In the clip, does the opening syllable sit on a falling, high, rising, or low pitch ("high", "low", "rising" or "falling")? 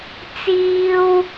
high